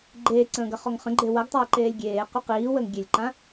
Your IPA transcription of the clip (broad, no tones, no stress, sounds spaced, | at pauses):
ɡ͡ǃ eː ǀ ə̃ː ɡ ɐ χ ɔ ŋ χ ə̃ ɡ͡ǃ e w ɐ ɡ tˤ a ə̯ ǃ eː lʲ ɡʲ eː q ʏ q iː w əː ŋ ɡʲ e lʲ ǃ ã